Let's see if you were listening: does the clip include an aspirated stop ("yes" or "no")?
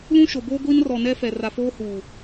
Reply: no